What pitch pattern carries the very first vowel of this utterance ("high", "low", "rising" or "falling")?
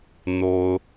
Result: low